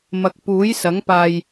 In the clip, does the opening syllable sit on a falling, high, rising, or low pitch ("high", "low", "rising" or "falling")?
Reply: low